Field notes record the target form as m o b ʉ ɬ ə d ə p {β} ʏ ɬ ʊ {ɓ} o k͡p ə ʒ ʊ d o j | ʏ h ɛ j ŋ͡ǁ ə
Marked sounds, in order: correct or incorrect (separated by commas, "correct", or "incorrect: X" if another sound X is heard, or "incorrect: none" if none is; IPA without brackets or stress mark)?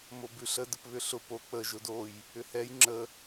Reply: correct, incorrect: p